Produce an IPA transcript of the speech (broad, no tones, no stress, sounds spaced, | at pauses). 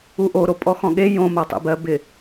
u ʔ o ɾ o pʼ ɔ x ɔ̃ ɠ e j õ m a tˤ ḛ b ɜ b ɪ